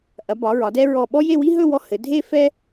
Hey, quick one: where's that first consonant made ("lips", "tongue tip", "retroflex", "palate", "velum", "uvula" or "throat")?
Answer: throat